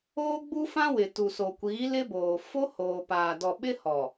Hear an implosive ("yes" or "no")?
yes